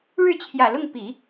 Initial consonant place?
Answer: retroflex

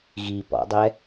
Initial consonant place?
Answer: velar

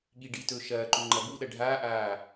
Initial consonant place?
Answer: velar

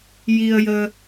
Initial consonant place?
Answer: palatal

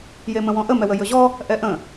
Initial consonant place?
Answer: palatal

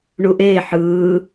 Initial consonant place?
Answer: retroflex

